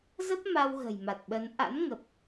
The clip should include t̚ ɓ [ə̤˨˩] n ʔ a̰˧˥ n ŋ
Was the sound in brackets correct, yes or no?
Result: no